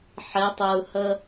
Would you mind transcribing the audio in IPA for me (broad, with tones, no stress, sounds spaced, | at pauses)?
ħ e˨˦ tˤ ɯː˨ h ə˦